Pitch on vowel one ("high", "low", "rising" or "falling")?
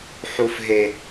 high